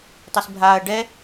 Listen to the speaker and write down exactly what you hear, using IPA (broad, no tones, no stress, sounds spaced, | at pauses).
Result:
tˤ i s bʱ aː ɐ̯ ɖ ɛ